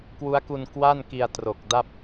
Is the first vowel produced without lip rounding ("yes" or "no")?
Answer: no